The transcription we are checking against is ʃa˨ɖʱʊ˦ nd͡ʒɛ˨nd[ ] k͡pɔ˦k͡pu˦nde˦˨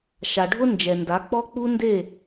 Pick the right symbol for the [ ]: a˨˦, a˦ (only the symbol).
a˨˦